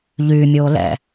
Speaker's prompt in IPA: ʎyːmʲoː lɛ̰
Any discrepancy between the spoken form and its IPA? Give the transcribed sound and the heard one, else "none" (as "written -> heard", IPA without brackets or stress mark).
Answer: none